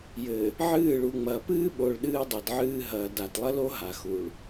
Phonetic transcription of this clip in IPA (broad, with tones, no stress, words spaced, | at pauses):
jɘ˨ | ʕɨː˦˨ ɭu˨ŋ͡mɐː˨pɨː˦ɓo˨ɭ ɗɨː˦dˤɨ˨dʕɨː˦ ɦɐː˨da˨tlˠɐ˦lo˦ ɦa˨xu˨ɭ